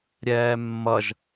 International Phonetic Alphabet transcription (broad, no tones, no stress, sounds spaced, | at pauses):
ɾʲ ɛː mː ʌ ʒ